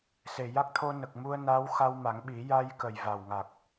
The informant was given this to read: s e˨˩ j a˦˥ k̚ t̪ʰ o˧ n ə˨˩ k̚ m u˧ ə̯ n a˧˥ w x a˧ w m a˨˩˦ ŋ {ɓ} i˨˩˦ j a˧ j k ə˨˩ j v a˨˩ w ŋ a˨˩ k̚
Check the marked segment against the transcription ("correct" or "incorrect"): correct